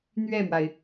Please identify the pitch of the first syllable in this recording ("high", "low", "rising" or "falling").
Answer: falling